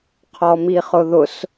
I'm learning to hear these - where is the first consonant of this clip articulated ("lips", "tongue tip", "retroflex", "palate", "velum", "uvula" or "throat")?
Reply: uvula